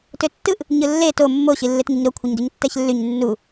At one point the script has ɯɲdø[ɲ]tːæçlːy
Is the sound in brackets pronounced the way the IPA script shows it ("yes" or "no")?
yes